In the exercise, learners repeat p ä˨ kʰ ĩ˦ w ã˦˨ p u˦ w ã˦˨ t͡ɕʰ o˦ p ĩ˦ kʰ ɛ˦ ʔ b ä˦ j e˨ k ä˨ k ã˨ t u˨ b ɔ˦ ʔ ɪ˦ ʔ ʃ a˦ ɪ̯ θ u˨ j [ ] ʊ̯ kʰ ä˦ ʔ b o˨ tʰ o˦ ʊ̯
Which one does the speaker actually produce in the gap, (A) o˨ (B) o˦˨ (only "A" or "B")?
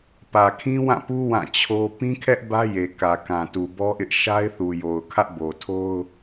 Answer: A